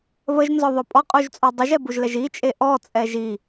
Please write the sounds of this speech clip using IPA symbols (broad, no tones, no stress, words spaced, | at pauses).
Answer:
βəʒnzɔðˤœ pʼɔqʼuʒt͡sʼɔ dˤəʒɛbuʒlɛʒ it͡ʃʼe ʔɔt͡sʼɛʒ i